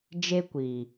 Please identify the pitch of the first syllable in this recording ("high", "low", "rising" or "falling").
high